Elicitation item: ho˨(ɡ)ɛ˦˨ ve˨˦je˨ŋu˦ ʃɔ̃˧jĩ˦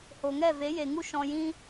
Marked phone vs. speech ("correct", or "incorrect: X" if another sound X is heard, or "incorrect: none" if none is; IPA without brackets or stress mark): incorrect: ŋ